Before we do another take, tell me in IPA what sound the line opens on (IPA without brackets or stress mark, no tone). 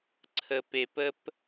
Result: ǀʰ